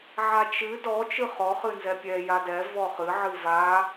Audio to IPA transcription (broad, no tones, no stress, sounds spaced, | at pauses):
ʕ a t͡ʃ ɨ d ɔ t͡ʃ ɨ χ ɔ χ ɨ n z ɛ pʲ ɛ j a d ɛ v ɔ χ ɨ ʕ ɨ v a